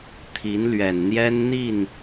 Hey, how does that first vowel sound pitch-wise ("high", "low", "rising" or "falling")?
rising